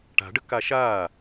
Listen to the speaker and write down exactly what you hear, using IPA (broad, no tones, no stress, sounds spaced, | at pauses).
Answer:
ʈ a̤ ɖ ə k a ʃ aː